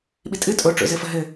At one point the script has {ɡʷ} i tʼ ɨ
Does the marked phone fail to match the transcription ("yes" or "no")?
yes